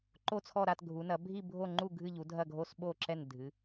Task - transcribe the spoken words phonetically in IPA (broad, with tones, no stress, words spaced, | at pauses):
ǃo˦˨t͡sʰɔ˦˨ɾa˦˨tɡʱu˩˧ nɐ˩˧bʱi˦˨bʱo˦˨ŋ͡ǃu˦˨ ɡʱɨ˦˨ʎu˩˧dʱɐ˦˨ɡʱo˦˨s ɓo˦˨ ǁɛ˦˨ndʱɨ˩˧